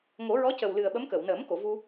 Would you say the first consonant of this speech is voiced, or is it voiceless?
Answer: voiced